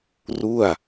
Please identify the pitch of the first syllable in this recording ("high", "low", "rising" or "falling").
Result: falling